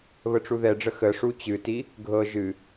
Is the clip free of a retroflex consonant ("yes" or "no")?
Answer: no